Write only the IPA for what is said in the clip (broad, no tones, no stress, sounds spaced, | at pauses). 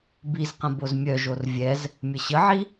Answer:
b i z q ə̃ b o z mʲ œ ʒ o r vʲ ɛ z | mʲ ə ɕ ə ʕ i